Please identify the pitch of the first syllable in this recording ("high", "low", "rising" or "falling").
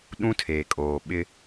high